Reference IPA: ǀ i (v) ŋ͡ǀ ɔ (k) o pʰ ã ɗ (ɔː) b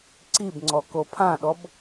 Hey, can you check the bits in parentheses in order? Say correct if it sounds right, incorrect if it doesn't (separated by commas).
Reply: incorrect, correct, incorrect